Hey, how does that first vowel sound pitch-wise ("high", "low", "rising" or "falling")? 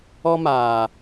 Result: high